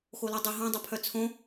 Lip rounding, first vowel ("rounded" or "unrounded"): rounded